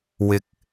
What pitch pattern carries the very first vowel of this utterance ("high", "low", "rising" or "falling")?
low